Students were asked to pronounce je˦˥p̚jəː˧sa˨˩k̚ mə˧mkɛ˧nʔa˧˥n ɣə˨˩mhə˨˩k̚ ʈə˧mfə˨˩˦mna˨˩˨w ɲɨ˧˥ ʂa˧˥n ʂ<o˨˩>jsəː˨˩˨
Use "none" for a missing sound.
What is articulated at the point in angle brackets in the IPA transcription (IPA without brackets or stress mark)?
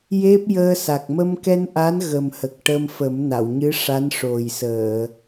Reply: o˨˩